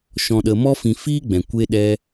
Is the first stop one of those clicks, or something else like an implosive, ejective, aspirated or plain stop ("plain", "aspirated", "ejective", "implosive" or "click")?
implosive